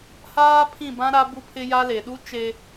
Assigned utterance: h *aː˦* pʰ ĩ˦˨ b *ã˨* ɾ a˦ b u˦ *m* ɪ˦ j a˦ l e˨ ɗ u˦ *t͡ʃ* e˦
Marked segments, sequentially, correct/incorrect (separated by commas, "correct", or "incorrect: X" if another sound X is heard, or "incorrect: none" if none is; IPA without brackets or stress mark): correct, incorrect: ã˦, incorrect: pʰ, correct